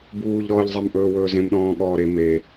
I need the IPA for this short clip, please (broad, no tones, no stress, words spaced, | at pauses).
buːʎɾɔːʎzˤem ʔɵːwɵːzẽmɗɔ̃ː ɠɔːɾe me